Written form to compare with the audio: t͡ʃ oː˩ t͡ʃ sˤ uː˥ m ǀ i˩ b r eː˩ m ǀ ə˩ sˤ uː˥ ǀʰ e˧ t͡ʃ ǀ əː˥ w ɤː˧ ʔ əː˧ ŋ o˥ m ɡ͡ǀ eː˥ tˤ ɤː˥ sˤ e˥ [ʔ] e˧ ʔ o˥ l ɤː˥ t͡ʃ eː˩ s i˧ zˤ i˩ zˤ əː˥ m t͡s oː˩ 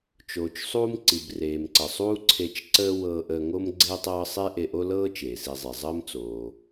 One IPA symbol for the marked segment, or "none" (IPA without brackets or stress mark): ʔ